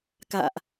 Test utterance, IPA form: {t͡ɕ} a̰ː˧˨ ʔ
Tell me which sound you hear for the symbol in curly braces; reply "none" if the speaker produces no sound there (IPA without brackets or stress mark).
k